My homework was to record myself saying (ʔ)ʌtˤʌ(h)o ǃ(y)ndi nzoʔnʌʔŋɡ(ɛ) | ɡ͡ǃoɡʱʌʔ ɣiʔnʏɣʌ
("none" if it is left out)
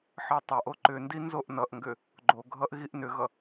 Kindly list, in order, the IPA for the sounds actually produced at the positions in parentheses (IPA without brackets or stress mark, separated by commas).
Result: ħ, ʔ, ʏ, ʏ